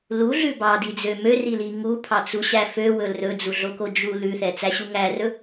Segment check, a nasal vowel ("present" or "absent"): absent